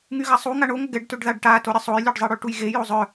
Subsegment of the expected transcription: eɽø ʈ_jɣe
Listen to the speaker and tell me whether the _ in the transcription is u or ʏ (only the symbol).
u